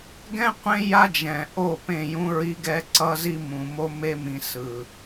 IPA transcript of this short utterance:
ɡɛ̃˦qʷẽ˦ ja˦d͡ʒɛ̃˨ ʔo˦˨pẽ˦˨jũ˦ɹi˦ ɡɛ˦ǀʌ˦zi˦mũ˨ mo˦me˦ mĩ˨ sɯ˨

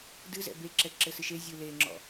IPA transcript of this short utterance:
dɨzɛ̰ be ǁɛǁɘsɨʃe zʲɯleŋ͡ǁɔ̰

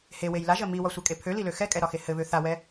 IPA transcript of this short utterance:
hewej laʒɜ miwɒsʷɛkʼe pʰølilø xɛkʼɛɾɒxe hɘβø θawɛ

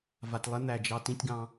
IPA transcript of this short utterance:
va˨tlˠe˦ n̪æ˨d͡ʒɑ˦ tĩ˦tʲɡɑ̃˦

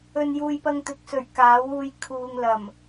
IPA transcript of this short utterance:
ɵ˨njuː˨j pɐ˧ŋt̪ɪ˨˥k̚sɵ˨˩ɥ kaː˨˥wuː˧j kʰuː˨ŋ lɐ˨˩m

